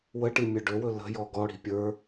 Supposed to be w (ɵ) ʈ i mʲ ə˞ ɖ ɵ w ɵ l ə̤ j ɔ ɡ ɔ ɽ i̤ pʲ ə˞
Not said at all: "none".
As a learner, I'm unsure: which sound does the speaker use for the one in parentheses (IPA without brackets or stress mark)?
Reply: ə